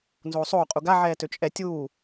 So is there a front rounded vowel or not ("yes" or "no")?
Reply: yes